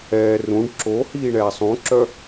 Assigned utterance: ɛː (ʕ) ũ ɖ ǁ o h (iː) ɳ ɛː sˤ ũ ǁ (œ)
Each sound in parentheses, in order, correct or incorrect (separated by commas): incorrect, correct, correct